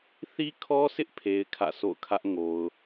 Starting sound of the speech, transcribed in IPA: θ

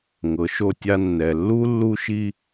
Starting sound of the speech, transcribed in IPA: ŋ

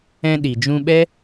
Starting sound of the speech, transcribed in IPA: ɛ̃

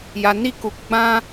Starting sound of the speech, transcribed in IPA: j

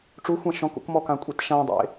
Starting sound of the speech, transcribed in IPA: ʈ͡ʂ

